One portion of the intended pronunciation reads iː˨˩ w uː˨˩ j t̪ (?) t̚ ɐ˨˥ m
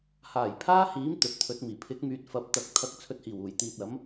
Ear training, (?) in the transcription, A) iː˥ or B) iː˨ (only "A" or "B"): B